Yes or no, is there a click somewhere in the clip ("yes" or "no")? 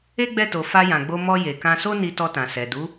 no